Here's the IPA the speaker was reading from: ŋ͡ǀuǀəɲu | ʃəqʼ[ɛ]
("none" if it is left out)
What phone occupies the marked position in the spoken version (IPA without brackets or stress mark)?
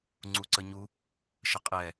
ɛ